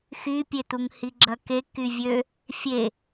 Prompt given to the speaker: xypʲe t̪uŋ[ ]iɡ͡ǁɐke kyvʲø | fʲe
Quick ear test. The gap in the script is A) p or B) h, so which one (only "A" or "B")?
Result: B